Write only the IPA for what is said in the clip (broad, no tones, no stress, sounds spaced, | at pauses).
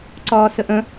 ǀ ɒː s ə ʔ ə̃